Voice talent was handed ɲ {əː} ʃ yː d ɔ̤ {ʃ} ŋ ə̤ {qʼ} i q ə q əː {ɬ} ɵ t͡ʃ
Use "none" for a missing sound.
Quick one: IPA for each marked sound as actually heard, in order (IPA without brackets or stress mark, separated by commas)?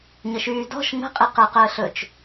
ə, ʃ, qʼ, ɬ